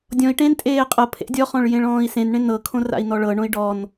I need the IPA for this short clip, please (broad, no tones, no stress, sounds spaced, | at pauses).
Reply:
dʲ ɔ̃ i̯ ʈ ẽ n tʼ eː qʼ ɤ pʰ ḛ dʲ ɔ χ ɔ̃ ɭ j ẽ ɭ ɔ̃ː i̯ s ẽ n ɳ ẽ n ɤ kʰ õ r a̰ i̯ n ɔ ɭ ɤ ɳ õ i̯ ɖ ɔ n